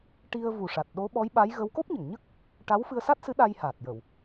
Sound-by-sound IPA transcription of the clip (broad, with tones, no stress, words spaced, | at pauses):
ʈi˧ə̯ vu˨˩ʂa˨˩t̚ɗo˧˥ ɓɔ˧˥jɓa˧˥j ɣə˧˥w ko˦˥p̚ɲə˨˩˨ŋɲə˦˥k̚ | ʈa˧˥wfɨ˧ə̯sa˦˥t̚sɨ˧˥ ɗa˧jhaː˨˩t̚jə˨˩˨w